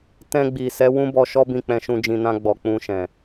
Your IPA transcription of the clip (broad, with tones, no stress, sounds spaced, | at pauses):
t ɛ̃˧ ɡ͡b i˨ s ɛ˨˦ w ũ˦ b ɔ˧ ʃ ɔ˦ b ĩ˦˨ k͡p ɛ̃˧ ʃ ũ˧ d͡ʒ ĩ˧ n ã˦ ɡ͡b ɔ˧ k͡p ũ˧ ʃ ɛ̃˨